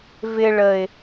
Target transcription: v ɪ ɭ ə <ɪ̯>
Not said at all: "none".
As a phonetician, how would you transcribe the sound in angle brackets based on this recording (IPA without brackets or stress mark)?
ɪ̯